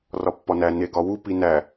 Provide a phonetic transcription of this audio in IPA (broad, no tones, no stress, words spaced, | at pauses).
rɒpːɒnæ neɡɒwu pinæ